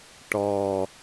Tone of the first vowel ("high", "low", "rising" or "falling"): low